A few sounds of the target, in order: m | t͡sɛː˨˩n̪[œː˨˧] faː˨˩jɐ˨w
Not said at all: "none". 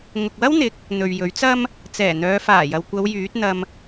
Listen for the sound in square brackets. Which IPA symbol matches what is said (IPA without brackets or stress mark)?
œː˨˧